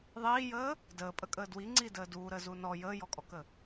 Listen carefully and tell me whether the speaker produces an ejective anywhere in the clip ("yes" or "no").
yes